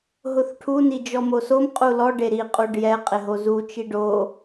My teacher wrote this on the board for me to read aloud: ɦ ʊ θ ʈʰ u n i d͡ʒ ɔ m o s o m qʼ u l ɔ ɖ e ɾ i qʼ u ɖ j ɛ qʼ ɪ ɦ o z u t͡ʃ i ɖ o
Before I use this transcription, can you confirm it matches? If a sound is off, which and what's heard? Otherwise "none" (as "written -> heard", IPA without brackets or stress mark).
none